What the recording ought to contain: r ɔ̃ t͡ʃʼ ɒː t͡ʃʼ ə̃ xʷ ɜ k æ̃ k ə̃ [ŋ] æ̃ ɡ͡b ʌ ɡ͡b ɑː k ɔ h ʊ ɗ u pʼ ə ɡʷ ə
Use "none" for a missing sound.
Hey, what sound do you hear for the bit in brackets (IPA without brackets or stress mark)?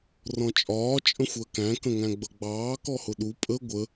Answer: ŋ